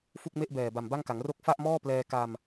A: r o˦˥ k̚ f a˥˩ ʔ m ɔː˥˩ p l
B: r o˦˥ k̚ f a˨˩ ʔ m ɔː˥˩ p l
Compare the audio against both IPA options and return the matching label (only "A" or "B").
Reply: A